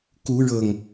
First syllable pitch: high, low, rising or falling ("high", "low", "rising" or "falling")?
rising